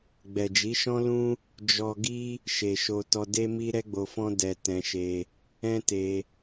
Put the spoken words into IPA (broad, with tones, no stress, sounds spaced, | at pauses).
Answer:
ɡ͡b ɛ˨ d͡ʒ i˨˦ ʃ ɔ̃˦ l ũ˦ | d͡ʒ ɔ˧ ɡ i˦ | ʃ e˨ ʃ o˧ t ɔ˧ d e˦ m i˦ ɾ ɛ˦ ɡ͡b o˧ f ɔ̃˦ d ɛ˧ t ɛ̃˧ ʃ e˧ | ɛ̃˦ t e˧